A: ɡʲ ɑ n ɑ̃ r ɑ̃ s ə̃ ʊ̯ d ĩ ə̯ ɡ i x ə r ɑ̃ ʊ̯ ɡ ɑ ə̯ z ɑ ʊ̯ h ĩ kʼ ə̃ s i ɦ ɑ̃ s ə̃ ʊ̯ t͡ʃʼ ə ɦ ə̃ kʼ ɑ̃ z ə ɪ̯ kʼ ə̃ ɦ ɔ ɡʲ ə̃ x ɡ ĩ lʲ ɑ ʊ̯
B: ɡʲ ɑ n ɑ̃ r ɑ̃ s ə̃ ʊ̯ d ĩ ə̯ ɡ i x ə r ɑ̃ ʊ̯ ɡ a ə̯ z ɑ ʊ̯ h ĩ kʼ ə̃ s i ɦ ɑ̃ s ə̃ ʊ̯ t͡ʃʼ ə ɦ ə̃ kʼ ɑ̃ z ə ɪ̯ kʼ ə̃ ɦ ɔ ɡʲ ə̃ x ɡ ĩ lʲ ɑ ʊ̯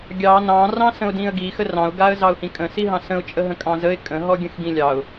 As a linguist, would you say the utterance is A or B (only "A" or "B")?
B